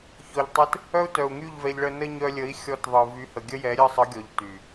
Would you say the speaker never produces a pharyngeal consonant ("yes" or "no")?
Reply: yes